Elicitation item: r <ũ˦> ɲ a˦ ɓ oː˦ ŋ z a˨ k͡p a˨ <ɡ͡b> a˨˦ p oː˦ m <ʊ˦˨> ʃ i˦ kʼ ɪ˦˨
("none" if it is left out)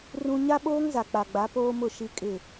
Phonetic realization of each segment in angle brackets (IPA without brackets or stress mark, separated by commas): ũ˦, ɡ͡b, ʊ˦˨